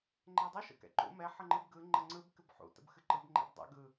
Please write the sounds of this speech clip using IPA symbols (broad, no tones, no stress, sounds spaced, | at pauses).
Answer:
ŋ͡ǃ ɛ dˤ ɯ ʃ ə̰ k ɛ̰ ǃ ṵ m ɛ ħ ə ŋ͡ǃ ɨ b ɡ ɯ ŋ͡ǃ ə ŋ͡ǀ ɯ b k ɨ b ħ ṵ t ə̰ b x ɨ ǃ ɯ b ŋ͡ǃ ɛ̰ b dˤ ɛ̰ ɡ ɯ